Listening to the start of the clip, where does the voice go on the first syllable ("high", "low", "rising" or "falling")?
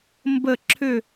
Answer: falling